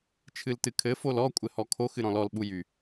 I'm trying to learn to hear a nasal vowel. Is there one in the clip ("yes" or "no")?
yes